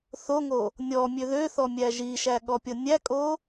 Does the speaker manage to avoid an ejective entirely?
no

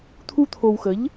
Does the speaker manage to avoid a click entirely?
yes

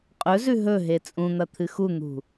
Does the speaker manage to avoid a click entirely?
yes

